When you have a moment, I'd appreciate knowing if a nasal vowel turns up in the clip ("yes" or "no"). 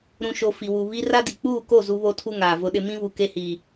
yes